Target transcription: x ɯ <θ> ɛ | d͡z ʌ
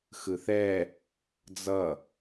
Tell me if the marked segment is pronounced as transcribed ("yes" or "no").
yes